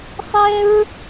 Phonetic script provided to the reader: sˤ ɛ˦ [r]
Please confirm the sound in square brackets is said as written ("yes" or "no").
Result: no